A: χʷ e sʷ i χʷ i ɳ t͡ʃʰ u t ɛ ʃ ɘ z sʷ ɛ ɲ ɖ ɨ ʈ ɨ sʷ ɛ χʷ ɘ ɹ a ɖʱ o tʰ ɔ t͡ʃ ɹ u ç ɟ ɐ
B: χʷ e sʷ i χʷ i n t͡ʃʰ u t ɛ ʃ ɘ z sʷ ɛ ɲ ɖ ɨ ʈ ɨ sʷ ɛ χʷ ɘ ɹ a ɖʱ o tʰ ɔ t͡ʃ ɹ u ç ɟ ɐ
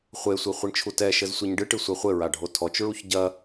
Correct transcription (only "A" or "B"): A